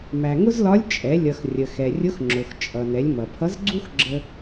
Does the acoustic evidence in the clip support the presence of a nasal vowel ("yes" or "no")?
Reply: no